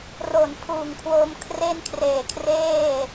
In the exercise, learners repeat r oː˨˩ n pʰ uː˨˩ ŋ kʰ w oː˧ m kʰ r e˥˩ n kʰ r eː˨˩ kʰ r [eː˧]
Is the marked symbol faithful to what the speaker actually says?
no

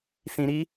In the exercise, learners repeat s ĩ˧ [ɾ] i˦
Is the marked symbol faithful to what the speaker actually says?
yes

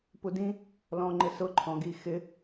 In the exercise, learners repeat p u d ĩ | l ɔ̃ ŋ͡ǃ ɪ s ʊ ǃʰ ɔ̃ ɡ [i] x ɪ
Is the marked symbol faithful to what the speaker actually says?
yes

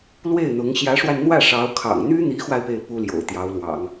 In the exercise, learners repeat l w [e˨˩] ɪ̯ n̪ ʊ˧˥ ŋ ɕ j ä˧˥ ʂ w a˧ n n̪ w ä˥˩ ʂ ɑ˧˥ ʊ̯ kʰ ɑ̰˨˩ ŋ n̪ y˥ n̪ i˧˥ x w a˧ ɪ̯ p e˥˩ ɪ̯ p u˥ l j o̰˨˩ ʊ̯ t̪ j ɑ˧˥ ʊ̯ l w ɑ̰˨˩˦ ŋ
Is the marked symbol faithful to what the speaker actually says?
no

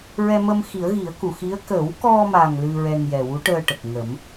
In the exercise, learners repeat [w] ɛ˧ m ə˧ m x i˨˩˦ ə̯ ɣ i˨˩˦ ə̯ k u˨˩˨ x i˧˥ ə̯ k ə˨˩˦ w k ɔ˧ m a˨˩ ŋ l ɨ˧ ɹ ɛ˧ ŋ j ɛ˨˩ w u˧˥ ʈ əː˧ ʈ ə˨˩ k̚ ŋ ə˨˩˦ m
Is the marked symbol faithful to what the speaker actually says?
no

